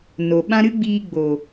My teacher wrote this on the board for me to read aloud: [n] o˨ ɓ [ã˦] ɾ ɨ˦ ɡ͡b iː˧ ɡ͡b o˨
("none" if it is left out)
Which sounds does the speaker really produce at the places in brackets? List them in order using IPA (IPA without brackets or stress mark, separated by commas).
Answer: n, ã˦